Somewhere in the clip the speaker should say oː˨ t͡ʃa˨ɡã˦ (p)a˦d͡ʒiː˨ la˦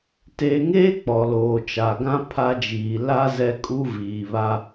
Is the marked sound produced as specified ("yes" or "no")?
no